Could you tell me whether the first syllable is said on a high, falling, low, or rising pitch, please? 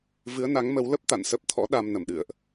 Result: rising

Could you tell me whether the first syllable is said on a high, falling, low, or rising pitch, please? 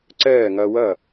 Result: falling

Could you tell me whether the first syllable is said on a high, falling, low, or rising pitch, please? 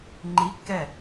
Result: rising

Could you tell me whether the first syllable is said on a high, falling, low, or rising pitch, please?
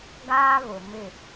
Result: high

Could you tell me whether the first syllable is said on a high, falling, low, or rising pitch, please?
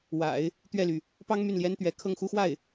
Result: low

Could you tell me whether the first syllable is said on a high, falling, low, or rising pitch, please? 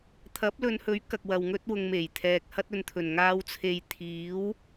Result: rising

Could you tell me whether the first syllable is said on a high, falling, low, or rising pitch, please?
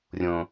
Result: low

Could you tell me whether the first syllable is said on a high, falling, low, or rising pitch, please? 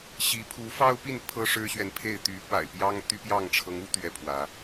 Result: rising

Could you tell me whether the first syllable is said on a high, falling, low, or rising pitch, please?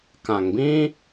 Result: low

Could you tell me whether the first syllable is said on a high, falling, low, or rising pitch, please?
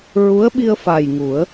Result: rising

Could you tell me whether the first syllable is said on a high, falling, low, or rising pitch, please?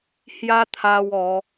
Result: high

